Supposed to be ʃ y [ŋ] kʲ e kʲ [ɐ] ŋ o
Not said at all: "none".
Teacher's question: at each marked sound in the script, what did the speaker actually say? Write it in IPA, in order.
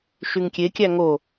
ŋ, æ

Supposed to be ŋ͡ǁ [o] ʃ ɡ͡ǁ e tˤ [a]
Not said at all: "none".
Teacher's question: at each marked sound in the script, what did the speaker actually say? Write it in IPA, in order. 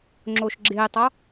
o, ɑ

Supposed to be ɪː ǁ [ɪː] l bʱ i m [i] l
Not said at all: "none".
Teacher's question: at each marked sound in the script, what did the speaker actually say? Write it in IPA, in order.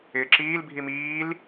iː, iː

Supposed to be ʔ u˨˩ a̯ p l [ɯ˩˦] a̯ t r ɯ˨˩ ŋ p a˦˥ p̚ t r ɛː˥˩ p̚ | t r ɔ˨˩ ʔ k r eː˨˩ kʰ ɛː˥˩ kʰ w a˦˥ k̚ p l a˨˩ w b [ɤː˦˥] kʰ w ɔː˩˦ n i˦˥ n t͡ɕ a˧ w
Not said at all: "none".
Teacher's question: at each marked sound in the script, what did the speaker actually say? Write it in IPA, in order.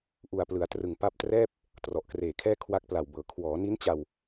ɯ˩˦, ɤː˩˦

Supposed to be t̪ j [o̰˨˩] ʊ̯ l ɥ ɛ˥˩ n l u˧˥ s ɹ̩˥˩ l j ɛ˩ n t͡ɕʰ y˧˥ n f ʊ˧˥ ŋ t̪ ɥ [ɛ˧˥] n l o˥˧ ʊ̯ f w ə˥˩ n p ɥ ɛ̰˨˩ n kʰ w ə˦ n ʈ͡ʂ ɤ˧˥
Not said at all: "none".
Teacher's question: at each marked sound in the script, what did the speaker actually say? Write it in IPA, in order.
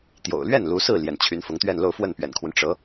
o̰˨˩, ɛ˥˧

